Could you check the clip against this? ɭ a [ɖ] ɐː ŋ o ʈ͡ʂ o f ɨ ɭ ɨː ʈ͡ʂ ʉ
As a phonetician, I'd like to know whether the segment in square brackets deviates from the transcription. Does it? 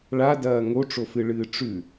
yes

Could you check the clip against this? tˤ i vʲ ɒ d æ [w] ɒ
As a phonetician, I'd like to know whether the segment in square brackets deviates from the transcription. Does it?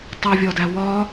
no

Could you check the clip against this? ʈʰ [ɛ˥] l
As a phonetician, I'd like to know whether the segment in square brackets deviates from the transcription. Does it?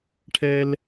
no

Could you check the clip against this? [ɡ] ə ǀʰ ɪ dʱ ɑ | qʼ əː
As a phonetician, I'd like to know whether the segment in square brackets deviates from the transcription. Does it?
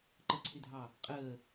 yes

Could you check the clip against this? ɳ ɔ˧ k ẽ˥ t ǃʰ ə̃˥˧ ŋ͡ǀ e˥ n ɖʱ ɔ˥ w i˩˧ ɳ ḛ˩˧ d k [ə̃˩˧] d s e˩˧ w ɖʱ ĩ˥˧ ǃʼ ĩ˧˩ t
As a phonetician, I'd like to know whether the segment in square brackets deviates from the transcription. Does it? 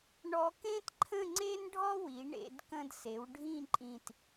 yes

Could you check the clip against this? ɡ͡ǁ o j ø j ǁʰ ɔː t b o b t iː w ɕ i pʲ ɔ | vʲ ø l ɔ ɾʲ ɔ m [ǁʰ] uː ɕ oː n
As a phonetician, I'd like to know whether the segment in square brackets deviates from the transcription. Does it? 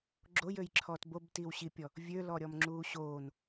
yes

